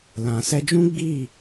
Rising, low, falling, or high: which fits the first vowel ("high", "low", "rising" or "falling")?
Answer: low